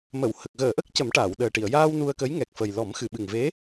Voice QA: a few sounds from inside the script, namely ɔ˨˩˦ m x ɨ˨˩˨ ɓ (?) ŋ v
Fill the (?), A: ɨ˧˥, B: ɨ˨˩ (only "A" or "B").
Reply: B